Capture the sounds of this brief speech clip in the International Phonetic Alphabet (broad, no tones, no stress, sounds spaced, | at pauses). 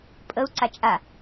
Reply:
pʼ ə u̯ ǀ a t͡ʃʼ a